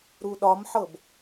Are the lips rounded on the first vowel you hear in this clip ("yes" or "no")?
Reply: yes